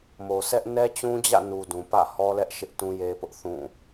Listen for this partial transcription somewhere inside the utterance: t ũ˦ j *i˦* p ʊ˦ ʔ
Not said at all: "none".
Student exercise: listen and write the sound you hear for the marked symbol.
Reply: e˦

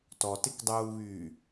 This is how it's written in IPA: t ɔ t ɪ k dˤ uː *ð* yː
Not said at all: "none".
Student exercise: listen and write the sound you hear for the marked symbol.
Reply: β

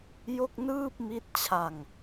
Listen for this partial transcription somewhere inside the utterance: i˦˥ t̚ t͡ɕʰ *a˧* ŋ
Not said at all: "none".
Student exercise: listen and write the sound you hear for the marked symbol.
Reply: a˧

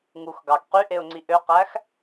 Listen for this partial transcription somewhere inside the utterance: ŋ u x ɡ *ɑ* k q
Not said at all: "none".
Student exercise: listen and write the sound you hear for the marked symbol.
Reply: ɑ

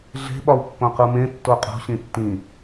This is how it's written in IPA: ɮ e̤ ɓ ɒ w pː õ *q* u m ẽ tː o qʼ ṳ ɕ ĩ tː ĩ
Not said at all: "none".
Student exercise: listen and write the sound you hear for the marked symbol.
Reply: q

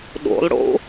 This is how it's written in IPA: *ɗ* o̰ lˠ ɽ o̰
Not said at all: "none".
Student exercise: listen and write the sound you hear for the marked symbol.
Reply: ɗ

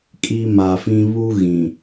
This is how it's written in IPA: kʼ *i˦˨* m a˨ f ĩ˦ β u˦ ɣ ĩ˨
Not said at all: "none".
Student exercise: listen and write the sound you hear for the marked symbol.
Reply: i˨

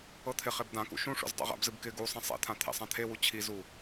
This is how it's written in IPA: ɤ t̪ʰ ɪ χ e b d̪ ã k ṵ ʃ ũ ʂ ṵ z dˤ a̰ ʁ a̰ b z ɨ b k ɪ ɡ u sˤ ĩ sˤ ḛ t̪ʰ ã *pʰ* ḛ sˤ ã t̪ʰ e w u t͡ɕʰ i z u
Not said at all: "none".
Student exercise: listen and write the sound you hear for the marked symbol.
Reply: t̪ʰ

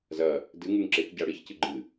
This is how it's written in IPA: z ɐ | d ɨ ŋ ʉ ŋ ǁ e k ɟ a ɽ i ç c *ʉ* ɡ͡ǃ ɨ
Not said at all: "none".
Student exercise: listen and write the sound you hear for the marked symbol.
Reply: ɨ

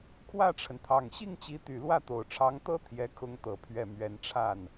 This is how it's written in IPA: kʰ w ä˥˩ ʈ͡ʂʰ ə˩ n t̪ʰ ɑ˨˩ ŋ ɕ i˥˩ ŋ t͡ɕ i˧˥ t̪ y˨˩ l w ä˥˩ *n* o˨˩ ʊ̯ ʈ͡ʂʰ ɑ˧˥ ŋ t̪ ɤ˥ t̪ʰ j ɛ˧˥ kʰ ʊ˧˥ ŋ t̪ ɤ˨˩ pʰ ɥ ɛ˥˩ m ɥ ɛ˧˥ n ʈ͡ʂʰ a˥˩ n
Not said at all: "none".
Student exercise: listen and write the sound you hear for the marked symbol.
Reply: t̪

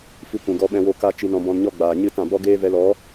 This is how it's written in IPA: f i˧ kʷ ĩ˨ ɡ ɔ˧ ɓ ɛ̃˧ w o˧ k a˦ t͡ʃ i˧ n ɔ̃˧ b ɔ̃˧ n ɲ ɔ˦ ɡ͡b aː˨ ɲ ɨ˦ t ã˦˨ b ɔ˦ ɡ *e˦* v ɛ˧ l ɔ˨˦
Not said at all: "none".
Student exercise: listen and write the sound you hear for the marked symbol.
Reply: eː˦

